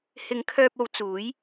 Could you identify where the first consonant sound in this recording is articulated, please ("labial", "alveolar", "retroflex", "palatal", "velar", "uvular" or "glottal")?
glottal